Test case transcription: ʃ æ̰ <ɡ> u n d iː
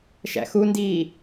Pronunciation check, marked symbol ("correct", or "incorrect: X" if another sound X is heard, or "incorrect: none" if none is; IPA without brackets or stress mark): incorrect: x